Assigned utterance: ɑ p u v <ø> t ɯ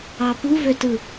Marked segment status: correct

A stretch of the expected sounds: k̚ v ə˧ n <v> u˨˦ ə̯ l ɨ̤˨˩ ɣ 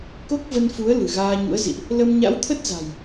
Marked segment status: incorrect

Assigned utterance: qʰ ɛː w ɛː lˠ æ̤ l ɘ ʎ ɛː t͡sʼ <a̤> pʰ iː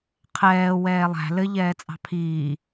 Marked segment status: incorrect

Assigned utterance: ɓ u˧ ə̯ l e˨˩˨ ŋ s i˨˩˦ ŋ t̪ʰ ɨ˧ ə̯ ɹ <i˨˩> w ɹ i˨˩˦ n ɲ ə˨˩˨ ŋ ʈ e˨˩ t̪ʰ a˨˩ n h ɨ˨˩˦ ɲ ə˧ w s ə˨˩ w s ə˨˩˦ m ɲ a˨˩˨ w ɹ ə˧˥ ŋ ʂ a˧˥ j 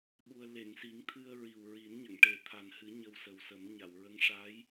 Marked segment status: correct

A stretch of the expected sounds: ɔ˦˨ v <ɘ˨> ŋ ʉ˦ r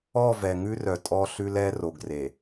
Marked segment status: incorrect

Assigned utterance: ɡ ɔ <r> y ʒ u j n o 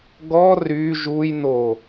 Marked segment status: correct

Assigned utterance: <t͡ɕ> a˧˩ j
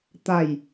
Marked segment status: incorrect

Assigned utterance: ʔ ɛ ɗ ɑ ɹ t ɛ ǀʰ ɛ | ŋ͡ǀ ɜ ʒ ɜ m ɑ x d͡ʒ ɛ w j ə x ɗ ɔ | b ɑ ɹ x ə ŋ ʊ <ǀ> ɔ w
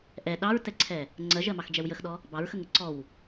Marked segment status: correct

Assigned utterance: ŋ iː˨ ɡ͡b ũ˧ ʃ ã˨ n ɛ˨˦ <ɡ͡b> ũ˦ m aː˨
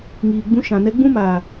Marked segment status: correct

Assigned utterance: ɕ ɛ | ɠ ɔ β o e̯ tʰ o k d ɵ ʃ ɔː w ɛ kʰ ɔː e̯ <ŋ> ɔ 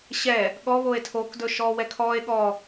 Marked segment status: incorrect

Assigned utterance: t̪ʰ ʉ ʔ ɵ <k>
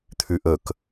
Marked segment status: correct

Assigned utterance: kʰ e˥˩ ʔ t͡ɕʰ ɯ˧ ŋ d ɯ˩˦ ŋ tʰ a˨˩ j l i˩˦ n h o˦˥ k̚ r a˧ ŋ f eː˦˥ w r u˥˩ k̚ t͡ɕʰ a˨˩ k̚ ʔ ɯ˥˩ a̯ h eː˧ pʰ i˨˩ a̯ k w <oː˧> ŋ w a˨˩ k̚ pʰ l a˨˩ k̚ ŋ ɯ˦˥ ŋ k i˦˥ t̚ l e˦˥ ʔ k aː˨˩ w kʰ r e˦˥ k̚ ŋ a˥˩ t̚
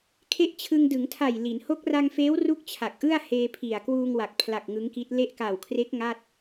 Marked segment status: incorrect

